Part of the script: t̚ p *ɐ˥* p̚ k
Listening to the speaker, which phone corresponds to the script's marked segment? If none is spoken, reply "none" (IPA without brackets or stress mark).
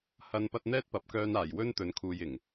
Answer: ɐ˨˥